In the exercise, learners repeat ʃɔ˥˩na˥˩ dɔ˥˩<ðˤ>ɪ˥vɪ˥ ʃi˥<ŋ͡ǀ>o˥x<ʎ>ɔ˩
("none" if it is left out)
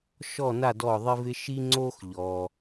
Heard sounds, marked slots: ðˤ, ŋ͡ǀ, ʎ

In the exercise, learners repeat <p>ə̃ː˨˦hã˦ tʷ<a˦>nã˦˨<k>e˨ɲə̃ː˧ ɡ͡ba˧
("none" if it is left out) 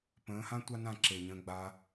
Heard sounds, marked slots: p, a˦, ǁ

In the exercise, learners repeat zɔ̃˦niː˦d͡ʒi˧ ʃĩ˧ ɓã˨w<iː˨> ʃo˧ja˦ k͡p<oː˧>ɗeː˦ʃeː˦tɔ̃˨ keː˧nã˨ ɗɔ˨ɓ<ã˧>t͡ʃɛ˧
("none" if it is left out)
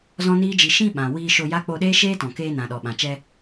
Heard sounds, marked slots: iː˧, o˧, ã˨

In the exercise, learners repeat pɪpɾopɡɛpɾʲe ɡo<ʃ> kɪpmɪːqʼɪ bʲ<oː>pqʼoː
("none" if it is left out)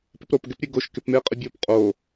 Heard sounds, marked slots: ʃ, oː

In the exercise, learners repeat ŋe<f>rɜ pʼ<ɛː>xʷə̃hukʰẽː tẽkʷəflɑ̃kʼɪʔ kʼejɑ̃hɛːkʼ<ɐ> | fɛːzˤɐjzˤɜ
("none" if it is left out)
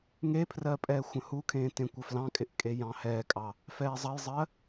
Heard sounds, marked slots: pʰ, ɛː, ɑ

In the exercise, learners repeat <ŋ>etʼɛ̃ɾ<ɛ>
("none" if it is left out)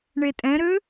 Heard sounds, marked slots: ɳ, ø

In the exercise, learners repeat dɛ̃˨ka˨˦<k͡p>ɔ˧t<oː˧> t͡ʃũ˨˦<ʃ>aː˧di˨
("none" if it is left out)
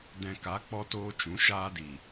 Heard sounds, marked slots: k͡p, oː˧, ʃ

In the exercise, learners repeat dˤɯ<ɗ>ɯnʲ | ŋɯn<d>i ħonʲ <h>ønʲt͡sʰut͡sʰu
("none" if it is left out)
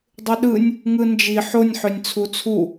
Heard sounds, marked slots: ɗ, d͡ʒ, ħ

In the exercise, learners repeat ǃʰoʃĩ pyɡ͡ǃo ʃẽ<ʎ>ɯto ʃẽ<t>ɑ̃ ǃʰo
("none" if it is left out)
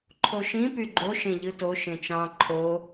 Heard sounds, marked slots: ʎ, t͡ʃ

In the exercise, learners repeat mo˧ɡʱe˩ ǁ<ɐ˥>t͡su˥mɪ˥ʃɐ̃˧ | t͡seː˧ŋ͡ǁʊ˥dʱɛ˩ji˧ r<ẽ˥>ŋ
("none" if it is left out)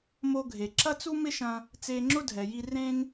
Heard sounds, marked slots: ɐ˥, ẽ˥

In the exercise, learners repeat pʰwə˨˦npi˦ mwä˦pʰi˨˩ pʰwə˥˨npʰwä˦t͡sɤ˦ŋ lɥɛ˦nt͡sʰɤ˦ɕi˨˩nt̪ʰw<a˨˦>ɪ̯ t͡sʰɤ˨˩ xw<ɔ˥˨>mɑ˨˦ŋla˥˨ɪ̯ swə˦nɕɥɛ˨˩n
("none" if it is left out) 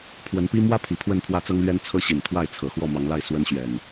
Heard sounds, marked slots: a˥˨, ɔ˥˨

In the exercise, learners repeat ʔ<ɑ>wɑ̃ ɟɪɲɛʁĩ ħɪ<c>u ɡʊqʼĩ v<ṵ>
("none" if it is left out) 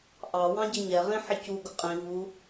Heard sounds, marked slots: ɑ, c, u

